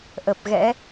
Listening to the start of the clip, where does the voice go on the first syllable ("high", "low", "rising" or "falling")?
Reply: low